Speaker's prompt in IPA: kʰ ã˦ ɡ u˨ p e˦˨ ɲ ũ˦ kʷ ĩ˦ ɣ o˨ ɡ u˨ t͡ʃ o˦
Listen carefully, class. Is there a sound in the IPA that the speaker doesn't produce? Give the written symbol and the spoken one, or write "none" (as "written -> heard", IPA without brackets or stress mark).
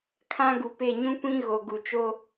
none